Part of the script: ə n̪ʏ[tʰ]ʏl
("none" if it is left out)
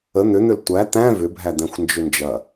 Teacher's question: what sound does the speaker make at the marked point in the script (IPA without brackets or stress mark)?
n̪